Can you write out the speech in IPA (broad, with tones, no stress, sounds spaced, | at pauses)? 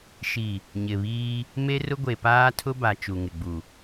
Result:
ʃ i˨ | ɲ ɪ˨ β iː˦ | m e˦ r ʊ˦ ɡʷ e˨ p aː˦ tʰ ʊ˦ b a˨ t͡ʃ u˨ ŋ ɪ˨ ɡ͡b u˨